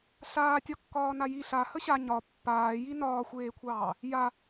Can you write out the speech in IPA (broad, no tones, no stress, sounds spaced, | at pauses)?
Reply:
ɬ aː tʲ ɒ kː ɒː n a j i ɬ a h ə ɕ a ɲ ɒ pː aː j i n ɒː xʷ eː kʷʰ ɑː | j a